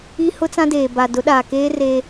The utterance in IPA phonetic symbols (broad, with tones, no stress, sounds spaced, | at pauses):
i˦ h ʊ˦ t͡s ã˦ d eː˨ b a˨ d ʊ˨˦ ɗ aː˨ k eː˦ r eː˦